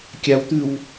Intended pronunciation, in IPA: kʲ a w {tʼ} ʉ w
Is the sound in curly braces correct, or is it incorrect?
incorrect